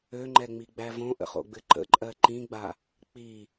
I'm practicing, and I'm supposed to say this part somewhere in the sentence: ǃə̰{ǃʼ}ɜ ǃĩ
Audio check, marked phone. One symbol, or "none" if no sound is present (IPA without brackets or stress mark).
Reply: ǃʼ